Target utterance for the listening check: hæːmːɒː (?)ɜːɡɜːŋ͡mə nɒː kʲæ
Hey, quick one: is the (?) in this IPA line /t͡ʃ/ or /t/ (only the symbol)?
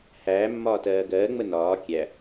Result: t